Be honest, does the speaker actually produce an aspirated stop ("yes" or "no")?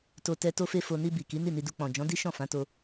no